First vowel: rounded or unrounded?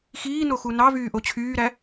unrounded